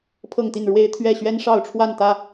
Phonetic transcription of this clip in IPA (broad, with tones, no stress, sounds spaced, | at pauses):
pʰ ɤ˥˨ ŋ t̪ i˥˨ n ɻ w e˦ ɪ̯ t̪ʰ ɥ ɛ˥˨ ɕ ɥ ɛ˦ n ʂ ɑ˥˨ ʊ̯ ʈ͡ʂʰ w a˥˨ n t̪ ä˥˨